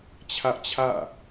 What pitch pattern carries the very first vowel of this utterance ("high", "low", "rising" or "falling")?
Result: high